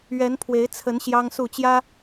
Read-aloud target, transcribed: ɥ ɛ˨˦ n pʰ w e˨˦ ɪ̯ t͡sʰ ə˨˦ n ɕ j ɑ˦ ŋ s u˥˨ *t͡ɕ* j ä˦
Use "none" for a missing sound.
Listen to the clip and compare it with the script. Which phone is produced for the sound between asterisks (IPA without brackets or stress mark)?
t͡ɕ